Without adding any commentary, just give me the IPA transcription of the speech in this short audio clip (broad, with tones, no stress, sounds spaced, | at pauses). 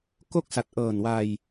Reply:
k o˦˥ k̚ s a˨˩ t̚ ʔ ɤː˨˩ n w a˧ j